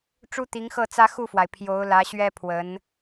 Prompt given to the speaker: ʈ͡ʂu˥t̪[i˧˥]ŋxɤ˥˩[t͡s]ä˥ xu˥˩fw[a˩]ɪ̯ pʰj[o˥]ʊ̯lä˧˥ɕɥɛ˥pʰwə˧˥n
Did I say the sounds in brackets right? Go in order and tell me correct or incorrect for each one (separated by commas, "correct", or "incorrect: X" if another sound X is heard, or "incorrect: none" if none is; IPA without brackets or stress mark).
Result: correct, correct, correct, incorrect: o˧˥